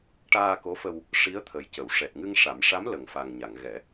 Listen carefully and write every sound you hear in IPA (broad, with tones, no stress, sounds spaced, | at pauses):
ʈ aː˧ k o˧˥ f ə˧ w | ʂ i˧˥ ə̯ t̪ʰ ə˨˩ j c ə˨˩˨ w ʂ ɛ˨˩ t̚ ŋ ɨ˧ ŋ ʂ a˨˩˦ m ʂ a˧˥ m l ə˨˩ ŋ f a˨˩ ŋ ɲ a˨˩˨ ŋ ɣ ɛ˨˩˦